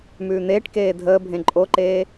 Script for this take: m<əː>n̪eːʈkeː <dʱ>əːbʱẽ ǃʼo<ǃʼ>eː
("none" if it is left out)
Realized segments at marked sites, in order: ʉː, dʱ, ǃ

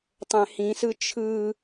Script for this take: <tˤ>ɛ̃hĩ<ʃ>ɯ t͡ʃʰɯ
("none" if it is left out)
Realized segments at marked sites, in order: tˤ, s

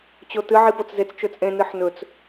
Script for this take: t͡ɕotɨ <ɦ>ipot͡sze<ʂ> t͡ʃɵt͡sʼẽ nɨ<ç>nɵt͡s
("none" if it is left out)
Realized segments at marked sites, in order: ʕ, t͡s, ħ

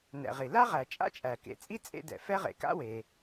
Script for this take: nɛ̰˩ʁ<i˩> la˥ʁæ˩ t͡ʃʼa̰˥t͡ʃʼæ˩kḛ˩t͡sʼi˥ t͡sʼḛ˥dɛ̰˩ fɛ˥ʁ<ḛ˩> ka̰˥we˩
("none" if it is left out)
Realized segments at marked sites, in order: i˩, ḛ˩

